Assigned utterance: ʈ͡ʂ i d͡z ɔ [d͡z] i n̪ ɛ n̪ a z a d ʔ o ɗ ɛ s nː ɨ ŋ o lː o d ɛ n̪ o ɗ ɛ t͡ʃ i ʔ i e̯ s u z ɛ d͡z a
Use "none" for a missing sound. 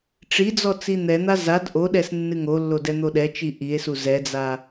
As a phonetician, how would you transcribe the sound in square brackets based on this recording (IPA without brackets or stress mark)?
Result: t͡s